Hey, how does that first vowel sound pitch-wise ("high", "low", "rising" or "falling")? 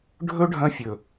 high